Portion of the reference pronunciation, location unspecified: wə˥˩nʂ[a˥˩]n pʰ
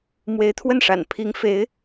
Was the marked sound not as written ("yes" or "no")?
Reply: yes